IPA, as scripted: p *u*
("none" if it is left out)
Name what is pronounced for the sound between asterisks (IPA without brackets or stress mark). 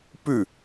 ʉ